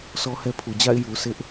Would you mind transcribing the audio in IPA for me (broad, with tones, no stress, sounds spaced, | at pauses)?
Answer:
sʰ ɔ˦ h ɛ˦ pʰ u˨ d͡ʑ a̰˦˨ ɪ̯ j u˨ sʰ ɪ˦ ʔ